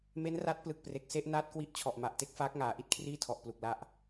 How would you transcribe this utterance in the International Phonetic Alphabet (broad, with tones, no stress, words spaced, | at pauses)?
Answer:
me˦˥nra˦˥t̚ plɯ˨˩k̚pre˨˩k̚ se˥˩ʔnaː˥˩t̚kwi˥˩ʔ t͡ɕʰɔ˨˩ʔma˨˩ʔte˥˩k̚faː˦˥k̚ ŋaː˩˦ʔi˦˥t̚kʰriː˥˩tʰɔ˨˩ʔ plu˨˩k̚la˦˥ʔ